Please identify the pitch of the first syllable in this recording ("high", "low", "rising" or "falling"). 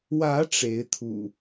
rising